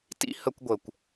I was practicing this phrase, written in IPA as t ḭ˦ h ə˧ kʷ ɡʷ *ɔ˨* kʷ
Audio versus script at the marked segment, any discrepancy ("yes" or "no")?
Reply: yes